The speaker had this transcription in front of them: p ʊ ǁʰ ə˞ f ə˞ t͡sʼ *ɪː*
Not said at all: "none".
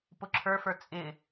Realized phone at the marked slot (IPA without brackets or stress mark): ɪ